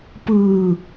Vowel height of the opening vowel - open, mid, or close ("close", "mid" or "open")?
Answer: close